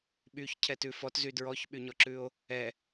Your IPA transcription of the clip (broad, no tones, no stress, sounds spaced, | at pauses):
ɓ y ç cʰ ɛ t ʉ f ɔ t z y d ɹ ɔ ç ɓ y ɲ ɔ ǁ ʉ o̯ | ɛ